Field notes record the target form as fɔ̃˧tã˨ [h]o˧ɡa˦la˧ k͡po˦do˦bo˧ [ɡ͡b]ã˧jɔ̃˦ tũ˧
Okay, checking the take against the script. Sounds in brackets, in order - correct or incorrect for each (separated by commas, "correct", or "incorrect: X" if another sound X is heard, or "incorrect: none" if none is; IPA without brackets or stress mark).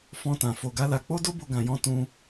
incorrect: f, incorrect: ɡ